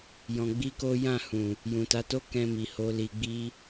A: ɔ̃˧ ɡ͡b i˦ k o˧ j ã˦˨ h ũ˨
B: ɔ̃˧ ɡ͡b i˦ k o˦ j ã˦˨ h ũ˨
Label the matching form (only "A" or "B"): B